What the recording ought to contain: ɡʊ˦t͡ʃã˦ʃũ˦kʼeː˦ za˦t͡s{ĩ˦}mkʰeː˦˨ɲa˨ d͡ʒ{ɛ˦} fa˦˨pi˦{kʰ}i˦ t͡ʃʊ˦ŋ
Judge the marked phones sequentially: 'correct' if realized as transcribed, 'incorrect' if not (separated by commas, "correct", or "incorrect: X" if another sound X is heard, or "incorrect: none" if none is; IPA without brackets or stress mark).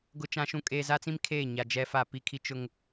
correct, correct, correct